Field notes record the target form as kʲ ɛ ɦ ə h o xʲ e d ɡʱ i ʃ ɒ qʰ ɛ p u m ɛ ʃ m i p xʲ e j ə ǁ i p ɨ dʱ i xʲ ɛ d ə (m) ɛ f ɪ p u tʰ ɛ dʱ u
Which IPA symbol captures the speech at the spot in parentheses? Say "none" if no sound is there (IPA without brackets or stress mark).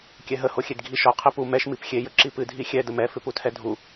m